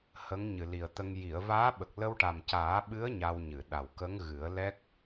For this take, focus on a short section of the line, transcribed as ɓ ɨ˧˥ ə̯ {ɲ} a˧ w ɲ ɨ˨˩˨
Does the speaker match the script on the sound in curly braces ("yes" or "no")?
yes